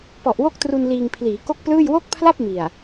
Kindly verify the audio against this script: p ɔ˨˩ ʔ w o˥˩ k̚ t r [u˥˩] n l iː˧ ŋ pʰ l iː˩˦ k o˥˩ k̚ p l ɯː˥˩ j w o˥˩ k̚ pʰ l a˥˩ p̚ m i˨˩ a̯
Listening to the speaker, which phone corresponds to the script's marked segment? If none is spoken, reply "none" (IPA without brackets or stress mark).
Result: u˧